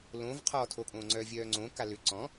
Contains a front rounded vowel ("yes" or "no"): yes